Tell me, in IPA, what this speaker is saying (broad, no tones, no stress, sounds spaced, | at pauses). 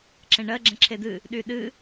ǁ ẽ ɳ ɜ ɡ͡ǁ ɛ̃ ǁʰ e d̪ ɨ | ɗ y ɗ ɨ